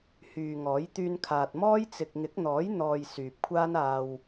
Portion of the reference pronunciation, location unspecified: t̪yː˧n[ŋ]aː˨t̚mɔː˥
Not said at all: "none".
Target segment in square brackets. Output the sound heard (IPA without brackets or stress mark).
kʰ